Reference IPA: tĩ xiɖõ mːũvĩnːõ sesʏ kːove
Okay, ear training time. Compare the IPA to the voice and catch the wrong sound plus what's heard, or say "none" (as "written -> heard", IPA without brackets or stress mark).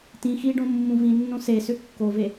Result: none